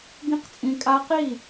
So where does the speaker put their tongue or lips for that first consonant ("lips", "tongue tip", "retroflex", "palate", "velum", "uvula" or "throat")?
velum